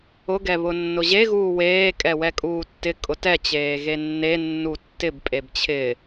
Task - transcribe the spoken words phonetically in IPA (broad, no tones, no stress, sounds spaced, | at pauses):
ʊ ɡ ɛ β ʊ nː ʊ ʑ e ɣ uː w eː kʼ ɛ w ɛ kʼ uː tː ɪ kʼ ʊ t ɛ t͡ɕ eː ɣ e nː e nː u tː ɪ b pʼ e b t͡ɕʰ ɪ